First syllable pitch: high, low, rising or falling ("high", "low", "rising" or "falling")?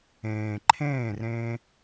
low